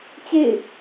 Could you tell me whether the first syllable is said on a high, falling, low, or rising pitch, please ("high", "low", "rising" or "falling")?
falling